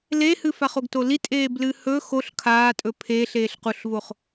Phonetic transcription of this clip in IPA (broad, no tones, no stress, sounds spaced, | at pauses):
l e h ɨ f a χ o ɡ t o l i tʼ eː b l ɨ h ɵ x o ɬ kʰ aː tʼ ɵ pʰ eː ɬ eː ɬ q u ɬ v o χ